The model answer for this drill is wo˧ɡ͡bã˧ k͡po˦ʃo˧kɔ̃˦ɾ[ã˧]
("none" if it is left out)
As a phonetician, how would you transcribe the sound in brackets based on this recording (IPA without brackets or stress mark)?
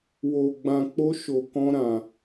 ã˧